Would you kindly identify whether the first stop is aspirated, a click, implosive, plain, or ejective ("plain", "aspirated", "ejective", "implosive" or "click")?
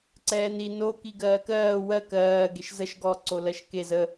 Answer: click